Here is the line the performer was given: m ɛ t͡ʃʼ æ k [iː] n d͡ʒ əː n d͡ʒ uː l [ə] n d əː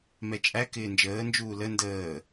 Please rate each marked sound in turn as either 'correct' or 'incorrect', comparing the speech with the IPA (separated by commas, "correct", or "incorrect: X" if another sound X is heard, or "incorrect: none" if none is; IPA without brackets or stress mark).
incorrect: ɪː, correct